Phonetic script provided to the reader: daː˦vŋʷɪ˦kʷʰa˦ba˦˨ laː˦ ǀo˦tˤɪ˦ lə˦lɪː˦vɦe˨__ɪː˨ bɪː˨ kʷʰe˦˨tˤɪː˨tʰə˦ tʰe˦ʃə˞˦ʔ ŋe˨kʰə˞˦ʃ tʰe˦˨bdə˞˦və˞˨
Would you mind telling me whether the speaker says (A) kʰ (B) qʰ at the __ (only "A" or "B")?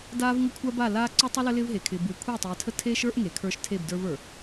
A